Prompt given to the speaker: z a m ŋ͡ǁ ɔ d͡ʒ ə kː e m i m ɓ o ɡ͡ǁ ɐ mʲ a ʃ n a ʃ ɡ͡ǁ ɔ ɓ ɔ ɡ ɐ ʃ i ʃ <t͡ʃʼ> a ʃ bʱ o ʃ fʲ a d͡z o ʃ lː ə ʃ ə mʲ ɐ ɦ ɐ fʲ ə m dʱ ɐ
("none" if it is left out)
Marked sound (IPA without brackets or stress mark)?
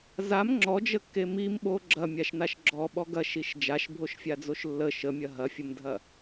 d͡ʒ